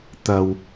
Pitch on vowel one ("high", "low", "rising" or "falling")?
low